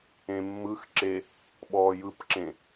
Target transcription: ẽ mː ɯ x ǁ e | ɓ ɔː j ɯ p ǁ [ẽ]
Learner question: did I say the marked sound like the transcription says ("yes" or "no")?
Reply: yes